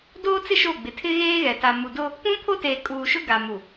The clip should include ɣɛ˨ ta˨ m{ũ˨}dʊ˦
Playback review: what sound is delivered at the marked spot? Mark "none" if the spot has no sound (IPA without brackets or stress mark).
u˨